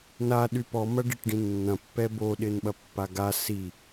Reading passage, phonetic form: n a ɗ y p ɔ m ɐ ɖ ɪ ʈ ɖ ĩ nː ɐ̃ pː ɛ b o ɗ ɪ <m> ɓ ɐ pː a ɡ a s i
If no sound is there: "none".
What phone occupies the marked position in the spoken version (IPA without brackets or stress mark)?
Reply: n